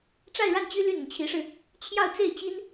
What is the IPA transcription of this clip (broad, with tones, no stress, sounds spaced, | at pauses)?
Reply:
ʈ͡ʂ a˥˧ ɪ̯ ɻ a˥˩ n t͡ɕ y˥ l y˥˩ n ə˩ n t͡ɕʰ i˧˥ ʂ ɻ̩˧ | t͡ɕʰ j ɑ˥˧ ʊ̯ t͡s e˥˩ ɪ̯ t͡ɕ i˥ n